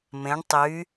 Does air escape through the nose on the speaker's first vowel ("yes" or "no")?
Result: yes